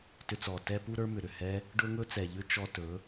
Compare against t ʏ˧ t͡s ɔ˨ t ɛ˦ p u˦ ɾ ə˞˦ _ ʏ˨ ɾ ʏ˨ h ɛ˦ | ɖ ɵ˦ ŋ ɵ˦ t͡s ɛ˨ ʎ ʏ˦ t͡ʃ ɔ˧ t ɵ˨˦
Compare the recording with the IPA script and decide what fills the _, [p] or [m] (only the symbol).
m